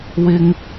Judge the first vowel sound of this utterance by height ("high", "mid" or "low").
high